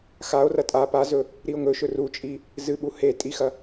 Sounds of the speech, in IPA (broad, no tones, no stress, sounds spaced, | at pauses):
x a o̯ r ɐ tʼ a p a z ɵ | ɾ i o̯ ŋ ɵ ʃ ɵ r u t͡ʃʼ i | z ɨ ɓ u h e tʼ i x ɐ